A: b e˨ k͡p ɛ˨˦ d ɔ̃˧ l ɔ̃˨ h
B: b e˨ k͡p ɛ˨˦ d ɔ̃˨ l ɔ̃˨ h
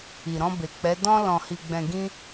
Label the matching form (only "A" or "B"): A